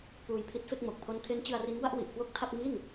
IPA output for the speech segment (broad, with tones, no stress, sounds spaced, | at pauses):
p uː˧ j pʰ i˦˥ t̚ f e˥˩ k̚ m o˨˩ k̚ pʰ o˦˥ n kʰ e˦˥ n t͡ɕ ɯ˧ a̯ r i˦˥ n b a˥˩ ʔ w i˨˩ ʔ k w o˥˩ k̚ tʰ a˥˩ p̚ ŋ i˥˩ n